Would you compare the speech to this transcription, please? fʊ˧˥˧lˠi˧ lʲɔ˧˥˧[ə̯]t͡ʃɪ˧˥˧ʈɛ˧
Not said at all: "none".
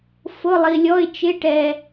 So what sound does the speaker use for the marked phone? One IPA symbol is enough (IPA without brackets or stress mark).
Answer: ɪ̯